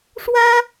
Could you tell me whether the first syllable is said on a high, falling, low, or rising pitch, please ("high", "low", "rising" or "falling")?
high